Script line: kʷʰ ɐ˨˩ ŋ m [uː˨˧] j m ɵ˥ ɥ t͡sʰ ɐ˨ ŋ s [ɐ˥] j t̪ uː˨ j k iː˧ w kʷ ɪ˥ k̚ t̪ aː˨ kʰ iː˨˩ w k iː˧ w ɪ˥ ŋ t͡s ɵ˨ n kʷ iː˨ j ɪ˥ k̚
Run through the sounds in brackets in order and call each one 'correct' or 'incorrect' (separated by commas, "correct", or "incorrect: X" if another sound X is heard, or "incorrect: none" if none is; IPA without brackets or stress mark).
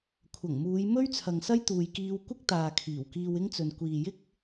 correct, correct